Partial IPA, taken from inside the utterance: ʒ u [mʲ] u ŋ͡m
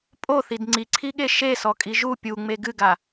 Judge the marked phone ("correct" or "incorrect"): incorrect